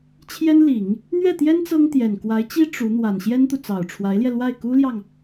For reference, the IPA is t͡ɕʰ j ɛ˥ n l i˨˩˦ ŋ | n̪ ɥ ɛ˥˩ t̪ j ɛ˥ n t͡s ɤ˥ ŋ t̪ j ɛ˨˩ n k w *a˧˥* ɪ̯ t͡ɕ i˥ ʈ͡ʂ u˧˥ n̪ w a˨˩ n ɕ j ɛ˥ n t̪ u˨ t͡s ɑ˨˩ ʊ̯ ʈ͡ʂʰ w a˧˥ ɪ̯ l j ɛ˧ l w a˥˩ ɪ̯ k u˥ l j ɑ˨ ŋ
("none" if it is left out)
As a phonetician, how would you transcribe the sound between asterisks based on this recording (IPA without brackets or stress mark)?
a˧˥